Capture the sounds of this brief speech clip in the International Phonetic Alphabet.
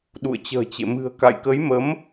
ɗ ṵ˧˨ ə̯ t͡ɕ ə̤ː˨˩ t͡ɕ ḛ˧˨ m ɨ̤˨˩ ə̯ k a̰˧˨ j k ə˨˦ j m ə˨˦ m

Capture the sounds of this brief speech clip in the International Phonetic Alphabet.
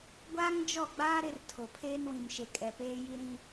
ɡʷ aː˦ ŋ d͡ʒ ɔ˦˨ ɡ͡b aː˦ ɾ ɪ˦ r tʰ o˨ pʰ eː˦ n w ĩ˨ m ʃ e˨ kʼ ɛ˨ p eː˦ j i˦ ɾ ĩ˦

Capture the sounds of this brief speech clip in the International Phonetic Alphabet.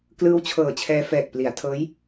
k l ɯː˦˥ w t͡ɕʰ ɤː˨˩ t͡ɕʰ ɛː˧ f ɛː˨˩ k̚ p l i˩˦ a̯ tʰ ɤː˦˥ j

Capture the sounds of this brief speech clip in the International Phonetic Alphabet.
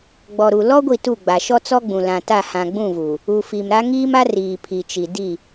ɡ͡b ɔ˨ ɾ u˨ l ɔ˦ ɡʷ i˦˨ t u˦˨ ɡ͡b a˨ ʃ ɔ˦ t͡s ɔ˦ ɡ͡b ũ˨ l ã˨ t a˦˨ h ã˨ ɡ͡b ũ˦˨ v u˨ | u˨ f i˨ m ɾ a˦ ŋ iː˦ m a˦ r iː˨ pʰ i˨ t͡ʃ i˨ d i˦˨

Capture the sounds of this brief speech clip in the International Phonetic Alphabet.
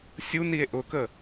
sʲ u n i e̯ ʔ ʊ k ə

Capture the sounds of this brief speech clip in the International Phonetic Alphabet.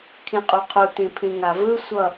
kʰ ĩ qʼ u qʰ u t ĩ pʰ ĩ ŋ a v ɯ sʷ ʌ

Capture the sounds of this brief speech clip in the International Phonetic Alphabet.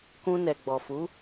k ũ˧ n ɛ˨ ɡ͡b ɔ˨ f u˨˦

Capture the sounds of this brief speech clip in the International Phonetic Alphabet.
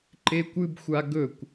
ǃ e kʷ ɨ b xʷ a ɡ ɵ kʷ

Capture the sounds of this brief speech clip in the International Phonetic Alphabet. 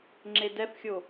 ŋ͡ǁ e d ɛ f xʲ o

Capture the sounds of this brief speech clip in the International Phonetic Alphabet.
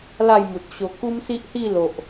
l a˥˧ j m u˨ t̚ ɕ o˧ k u˦ m s i˦ ʔ h i˥˧ l o˨ ʔ

